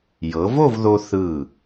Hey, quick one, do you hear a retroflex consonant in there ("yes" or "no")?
no